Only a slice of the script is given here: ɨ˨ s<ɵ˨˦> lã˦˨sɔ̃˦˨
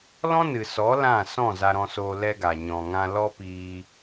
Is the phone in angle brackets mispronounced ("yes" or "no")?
yes